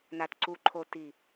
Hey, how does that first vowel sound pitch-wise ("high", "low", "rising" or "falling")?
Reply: low